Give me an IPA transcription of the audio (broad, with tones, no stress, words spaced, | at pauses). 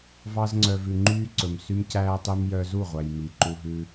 vɑ˧zŋ͡ǀœ˨vʉ˨ ŋ͡ǃyː˦ǀɵ˨m sy˦mcæː˦tˤy˦m jœ˧zu˦˨ʁʷæ˨j mi˨ǃu˧ɦʉ˧